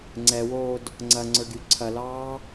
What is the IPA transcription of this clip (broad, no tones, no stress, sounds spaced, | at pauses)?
ŋ͡ǀ ɛ w oː d | ŋ͡ǀ ɐ ŋ͡ǀ ə˞ ɡ y ǀʰ ɐ l ɑː